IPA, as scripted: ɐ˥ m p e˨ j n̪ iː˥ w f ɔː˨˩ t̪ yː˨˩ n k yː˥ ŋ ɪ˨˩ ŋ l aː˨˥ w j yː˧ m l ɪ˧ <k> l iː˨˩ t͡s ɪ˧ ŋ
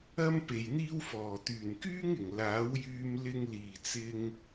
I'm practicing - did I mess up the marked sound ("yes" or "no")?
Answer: yes